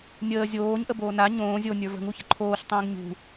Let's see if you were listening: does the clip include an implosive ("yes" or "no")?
no